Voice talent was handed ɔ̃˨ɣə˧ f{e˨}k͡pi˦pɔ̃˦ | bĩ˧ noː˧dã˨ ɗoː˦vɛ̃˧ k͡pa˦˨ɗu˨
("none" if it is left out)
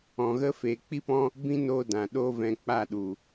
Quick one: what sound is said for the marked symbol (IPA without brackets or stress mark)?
eː˨